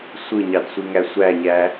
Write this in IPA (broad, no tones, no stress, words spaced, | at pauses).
sʷɯɲɑdsʷiŋæ sʷæɲæ